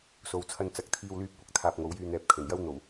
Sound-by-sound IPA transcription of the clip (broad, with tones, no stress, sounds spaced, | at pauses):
s o˨˧ w t͡sʰ ɐ˧ n t͡s ɐ˨˥ k̚ t̪ʰ iː˧ w l yː˧ p̚ kʷ ɐ˥ k̚ t̪ʰ aː˧ p̚ ŋ o˨˥ w j yː˧ n̪ ɛː˨ p̚ kʰ ɵ˨˩ n j ɐ˥ w n̪ o˨˩ w